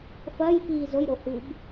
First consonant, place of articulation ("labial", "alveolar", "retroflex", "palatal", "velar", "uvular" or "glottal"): labial